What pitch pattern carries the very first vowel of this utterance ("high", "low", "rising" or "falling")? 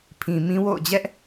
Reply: low